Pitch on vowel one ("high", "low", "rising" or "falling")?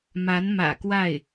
rising